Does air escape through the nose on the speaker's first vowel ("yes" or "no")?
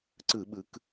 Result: no